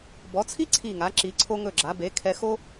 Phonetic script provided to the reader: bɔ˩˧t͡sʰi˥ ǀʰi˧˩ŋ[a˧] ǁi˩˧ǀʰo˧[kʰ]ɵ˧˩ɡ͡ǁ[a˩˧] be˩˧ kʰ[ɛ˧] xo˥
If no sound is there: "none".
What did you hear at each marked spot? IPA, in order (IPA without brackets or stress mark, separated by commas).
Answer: a˩˧, ŋ, a˩˧, ɛ˧